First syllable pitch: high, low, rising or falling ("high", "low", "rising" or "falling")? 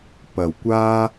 low